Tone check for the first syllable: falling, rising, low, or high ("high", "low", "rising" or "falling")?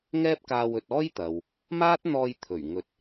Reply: high